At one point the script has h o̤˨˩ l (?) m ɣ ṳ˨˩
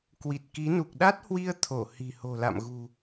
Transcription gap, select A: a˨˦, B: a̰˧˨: B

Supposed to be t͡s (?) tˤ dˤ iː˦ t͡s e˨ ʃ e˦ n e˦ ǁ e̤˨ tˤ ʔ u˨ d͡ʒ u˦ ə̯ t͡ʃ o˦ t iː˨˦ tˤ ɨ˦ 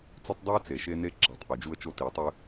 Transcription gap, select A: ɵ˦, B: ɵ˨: A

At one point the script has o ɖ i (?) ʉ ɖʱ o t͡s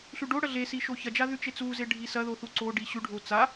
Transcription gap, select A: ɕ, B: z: A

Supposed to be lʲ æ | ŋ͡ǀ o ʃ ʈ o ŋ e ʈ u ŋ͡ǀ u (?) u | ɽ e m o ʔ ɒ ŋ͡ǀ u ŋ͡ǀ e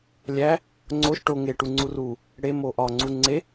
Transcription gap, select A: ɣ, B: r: B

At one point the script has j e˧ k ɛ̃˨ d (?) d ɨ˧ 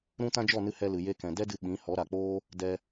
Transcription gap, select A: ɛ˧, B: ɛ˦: B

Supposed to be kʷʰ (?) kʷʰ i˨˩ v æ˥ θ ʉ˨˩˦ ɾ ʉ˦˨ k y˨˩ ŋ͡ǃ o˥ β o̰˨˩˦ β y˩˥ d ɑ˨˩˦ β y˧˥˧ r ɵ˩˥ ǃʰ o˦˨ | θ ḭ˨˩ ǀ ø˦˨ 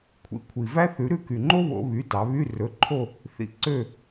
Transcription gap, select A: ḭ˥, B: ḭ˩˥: B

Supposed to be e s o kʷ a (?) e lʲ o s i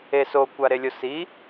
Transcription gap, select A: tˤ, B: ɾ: B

